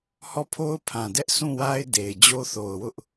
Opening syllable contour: falling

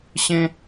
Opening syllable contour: high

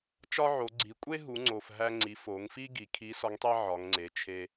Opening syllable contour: high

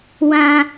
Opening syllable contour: high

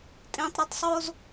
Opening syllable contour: low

